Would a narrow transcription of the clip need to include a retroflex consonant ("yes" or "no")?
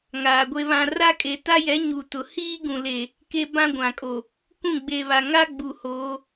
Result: no